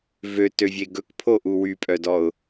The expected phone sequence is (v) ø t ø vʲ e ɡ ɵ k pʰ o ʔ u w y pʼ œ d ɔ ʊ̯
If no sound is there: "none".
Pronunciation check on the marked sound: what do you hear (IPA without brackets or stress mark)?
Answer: v